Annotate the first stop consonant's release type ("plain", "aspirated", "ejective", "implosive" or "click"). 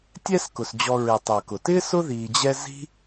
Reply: plain